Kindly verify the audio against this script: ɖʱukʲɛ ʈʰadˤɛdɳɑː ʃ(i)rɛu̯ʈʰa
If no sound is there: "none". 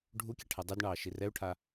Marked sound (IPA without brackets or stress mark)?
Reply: i